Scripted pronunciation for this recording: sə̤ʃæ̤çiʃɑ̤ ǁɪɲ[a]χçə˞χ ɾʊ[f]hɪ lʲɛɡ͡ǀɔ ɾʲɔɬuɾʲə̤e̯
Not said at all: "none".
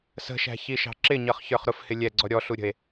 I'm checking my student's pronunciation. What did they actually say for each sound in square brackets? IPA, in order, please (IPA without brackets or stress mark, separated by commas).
ʌ, f